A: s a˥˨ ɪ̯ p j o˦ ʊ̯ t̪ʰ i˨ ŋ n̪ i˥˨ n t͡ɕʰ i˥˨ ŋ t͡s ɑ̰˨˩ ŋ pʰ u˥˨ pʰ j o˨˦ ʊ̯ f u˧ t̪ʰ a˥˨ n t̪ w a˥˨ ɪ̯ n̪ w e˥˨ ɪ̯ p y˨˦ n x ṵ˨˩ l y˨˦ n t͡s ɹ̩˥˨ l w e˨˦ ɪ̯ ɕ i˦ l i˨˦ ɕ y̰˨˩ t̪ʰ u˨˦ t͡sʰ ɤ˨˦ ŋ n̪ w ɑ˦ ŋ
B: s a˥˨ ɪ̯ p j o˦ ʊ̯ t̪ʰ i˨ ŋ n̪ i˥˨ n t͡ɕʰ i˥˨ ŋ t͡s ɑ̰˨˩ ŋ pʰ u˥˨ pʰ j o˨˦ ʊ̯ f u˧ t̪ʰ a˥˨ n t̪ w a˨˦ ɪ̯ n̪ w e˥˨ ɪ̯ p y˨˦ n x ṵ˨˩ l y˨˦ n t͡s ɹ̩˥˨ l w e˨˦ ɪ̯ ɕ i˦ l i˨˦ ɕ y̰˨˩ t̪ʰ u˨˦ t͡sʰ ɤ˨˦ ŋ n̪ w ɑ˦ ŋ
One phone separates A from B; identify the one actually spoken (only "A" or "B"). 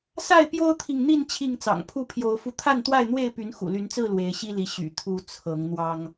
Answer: A